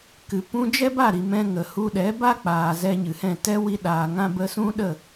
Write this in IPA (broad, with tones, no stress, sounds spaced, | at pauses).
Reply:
k ɨ˨ p ũ˧ d͡ʒ ɛ˦ b a˦˨ ɾ i˧ m ɛ̃˦ ŋ ə˨ h u˧ ɗ ɛ˨˦ b a˦ k͡p aː˨ z ɛ˧ ɲ ɨ˨ h ɛ̃˦˨ t ɛ˦ w i˧ ɗ aː˨ ŋ ã˧ b ə˧ s ũ˦ ɗ ə˦˨